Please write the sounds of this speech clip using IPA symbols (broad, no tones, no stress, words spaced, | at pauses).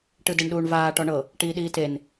ʈɯdeɳɗuːɳvaː ʈɔɳɤ | ʈiːɗiːten